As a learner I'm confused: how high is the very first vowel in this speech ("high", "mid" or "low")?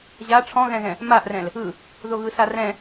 low